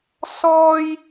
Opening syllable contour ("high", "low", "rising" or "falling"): high